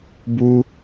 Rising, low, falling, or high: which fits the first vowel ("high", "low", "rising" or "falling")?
high